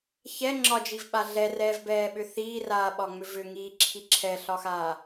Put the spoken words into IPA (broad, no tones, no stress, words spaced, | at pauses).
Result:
çɛ ŋ͡ǁɒd͡ʒivɓa ɮɛrɛːvbɛːɓʏ θiːraːɓɒŋ͡mʏ vʏŋiːǁʰi ǁʰɛɬɒxaː